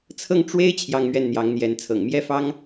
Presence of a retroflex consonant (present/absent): present